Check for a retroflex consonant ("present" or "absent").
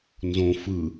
absent